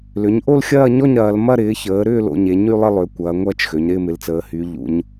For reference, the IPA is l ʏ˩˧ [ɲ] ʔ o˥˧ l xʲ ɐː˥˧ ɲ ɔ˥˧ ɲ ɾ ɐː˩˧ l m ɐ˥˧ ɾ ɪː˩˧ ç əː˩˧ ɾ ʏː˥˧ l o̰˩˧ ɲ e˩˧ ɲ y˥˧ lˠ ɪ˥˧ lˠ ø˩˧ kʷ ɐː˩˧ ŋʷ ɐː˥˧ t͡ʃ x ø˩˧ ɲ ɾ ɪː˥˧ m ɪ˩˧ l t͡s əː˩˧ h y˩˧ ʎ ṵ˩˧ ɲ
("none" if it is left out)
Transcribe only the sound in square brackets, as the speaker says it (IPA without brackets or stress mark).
ɲ